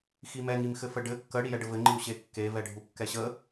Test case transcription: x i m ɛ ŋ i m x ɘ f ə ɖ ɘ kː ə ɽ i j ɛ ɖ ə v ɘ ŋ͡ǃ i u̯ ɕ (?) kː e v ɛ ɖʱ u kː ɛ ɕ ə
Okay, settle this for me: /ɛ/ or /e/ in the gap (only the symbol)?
e